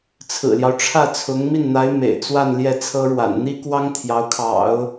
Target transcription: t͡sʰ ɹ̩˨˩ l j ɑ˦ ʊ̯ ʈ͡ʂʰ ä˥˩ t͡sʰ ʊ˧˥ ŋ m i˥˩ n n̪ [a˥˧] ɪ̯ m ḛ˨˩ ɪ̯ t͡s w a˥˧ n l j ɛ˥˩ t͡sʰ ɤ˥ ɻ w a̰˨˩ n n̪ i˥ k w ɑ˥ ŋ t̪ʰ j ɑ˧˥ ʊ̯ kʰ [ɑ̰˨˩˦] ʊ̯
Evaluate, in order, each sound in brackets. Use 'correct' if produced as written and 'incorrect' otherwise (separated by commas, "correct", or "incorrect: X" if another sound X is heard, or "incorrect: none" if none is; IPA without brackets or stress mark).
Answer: incorrect: a˧˥, correct